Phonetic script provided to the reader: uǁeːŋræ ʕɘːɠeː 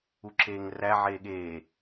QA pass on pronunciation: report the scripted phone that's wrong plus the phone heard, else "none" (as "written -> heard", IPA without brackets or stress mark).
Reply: ɘː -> eː